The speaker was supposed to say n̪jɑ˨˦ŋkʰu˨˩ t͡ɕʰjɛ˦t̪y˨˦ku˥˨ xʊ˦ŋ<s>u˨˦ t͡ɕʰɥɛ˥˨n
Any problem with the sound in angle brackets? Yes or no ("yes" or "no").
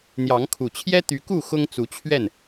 yes